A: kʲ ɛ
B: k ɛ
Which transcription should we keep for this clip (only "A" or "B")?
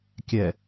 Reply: A